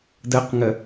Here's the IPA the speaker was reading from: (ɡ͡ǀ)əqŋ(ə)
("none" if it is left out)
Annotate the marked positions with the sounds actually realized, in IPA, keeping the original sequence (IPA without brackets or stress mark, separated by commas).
d, ə